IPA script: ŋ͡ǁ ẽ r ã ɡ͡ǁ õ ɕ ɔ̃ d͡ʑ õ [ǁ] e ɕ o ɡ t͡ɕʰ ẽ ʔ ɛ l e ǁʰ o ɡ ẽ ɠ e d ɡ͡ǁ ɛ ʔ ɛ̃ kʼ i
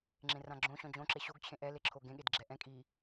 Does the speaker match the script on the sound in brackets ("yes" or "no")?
yes